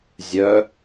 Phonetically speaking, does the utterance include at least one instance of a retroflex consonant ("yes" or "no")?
no